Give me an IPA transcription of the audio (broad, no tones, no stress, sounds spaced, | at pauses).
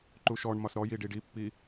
ǃ u ʃ ɔ ɳ m ɒ s ɾ ɔ j i ɖ i ɖ i pː i